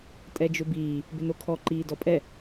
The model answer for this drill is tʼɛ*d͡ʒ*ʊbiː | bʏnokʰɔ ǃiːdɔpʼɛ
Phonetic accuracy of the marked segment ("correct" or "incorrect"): correct